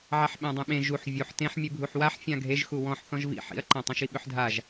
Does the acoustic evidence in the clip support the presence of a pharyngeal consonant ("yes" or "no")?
yes